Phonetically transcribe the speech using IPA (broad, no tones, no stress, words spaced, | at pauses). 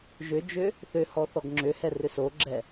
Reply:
ʒʏd͡ʒʏ | θʏhɔ θɔɡŋ͡ǁʏhɛ rʏsoɡ͡ǁɛ